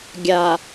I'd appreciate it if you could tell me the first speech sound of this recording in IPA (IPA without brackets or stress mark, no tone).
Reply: ɡʲ